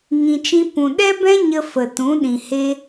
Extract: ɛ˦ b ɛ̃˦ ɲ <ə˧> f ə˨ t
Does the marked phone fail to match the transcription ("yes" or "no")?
no